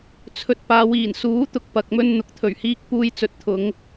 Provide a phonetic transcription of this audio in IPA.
t͡sʰ ɵ˧ t̚ p aː˨˧ w iː˨˩ n s uː˨˥ t̪ ʊ˧ k̚ p ɐ˨ k̚ m ɵ˧ n n̪ ʊ˨ k̚ t̪ʰ ɵ˨˩ ɥ h iː˧ k̚ p uː˧ j t͡s ɵ˨˥ t̚ t̪ʰ ʊ˨˧ ŋ

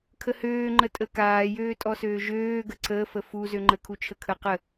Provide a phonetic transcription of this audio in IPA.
kʰ ə h øː ŋ͡ǃ ə tʼ ə k aː j øː tʼ ɔ s øː ʒ øː ɡ ə ǀ əː f ə f u z ø ŋ͡ǃ ə kʰ u t͡ʃʰ ə kʰ ə q ə

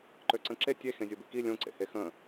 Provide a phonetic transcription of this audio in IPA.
ǃ ø ǀ ə̃ ǁ e tʲ e x ẽ zʲ o b i k i lʲ õ ǀ ḛ h e x ə̃

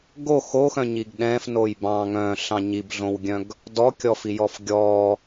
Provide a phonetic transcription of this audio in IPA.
ɡ o x o x œ̃ ɲ i ɡ ɗ ɛ̃ f n o j b ɑ̃ ŋ œ̃ ɬ ɑ̃ ɲ i b ɮ õ w ɡʲ œ̃ ɡ | d ɔ kʲ ɔ f i j ɔ f ɡʲ ɔ

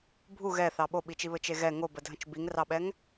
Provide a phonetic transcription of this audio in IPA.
bʱ u ɣ ɛ θ ɑ ɓ o ɓ i t͡ʃ i β ɘ t͡ʃ e ɣ ɛ ŋ o b ə dʱ ə̃ t͡ʃ b i ŋ r ɑ ɓ ɛ ŋ

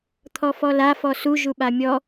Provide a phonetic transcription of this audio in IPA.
t̪ʰ ɔ f ɔ l a f ɔ s u ʒ u ɓ a mʲ ɔ

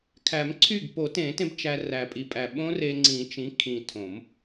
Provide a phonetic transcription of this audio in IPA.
kʰ æ˨˩˦ m ǀʰ y˥˩ ɡ p o˨˩˦ t ẽ˨˩˦ t ẽ˧ b t͡ʃ æ˧ r æ˨˩ pʼ i˨˩ pʼ æ˨˩ ɓ õ˦˥ r e˧ ŋ͡ǀ ĩ˨˩˦ t͡ʃ ĩ˩˥ kʰ ĩ˨˩ tʰ õ˨˩˦ m

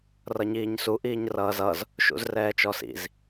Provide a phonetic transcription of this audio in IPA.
r ʌ ɲ iː ɲ s u ʔ iː ɲ r ʌː z ʌ z | ʃ ṵ z r ɛː t͡ʃ ɔ s ḭ z

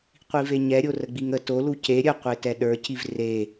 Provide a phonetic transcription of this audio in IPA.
qʷ i v e ɲ ɛ ɾʲ o r ə ɡ͡b i ŋ ə t o l u c e ɾʲ ə qʷ e t ɛ ɗ ə˞ c i v r e

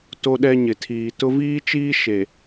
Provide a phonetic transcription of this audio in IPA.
t o˦ ɗ ɛ˦ ɲ ɪ˨ tʰ iː˨ t ʊ˦ v iː˦ t͡ʃ iː˦ ʃ e˨

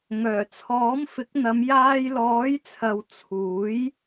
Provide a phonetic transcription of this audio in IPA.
ŋ œː˨˩ t͡sʰ ɔː˨˥ m f ɪ˨˥ k̚ n̪ ɐ˨˧ m j aː˧ j l ɔː˨˥ j t͡sʰ ɐ˨ w t͡sʰ uː˨˥ j

